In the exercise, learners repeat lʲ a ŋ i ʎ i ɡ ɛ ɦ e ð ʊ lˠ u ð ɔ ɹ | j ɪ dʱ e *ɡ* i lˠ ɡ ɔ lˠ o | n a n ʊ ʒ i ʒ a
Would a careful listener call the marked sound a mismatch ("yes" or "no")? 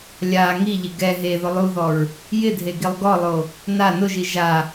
no